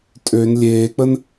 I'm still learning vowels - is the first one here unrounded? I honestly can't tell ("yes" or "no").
no